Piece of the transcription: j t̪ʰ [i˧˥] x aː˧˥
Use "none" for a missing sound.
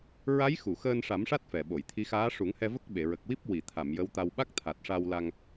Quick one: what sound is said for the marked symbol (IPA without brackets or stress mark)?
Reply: i˧˥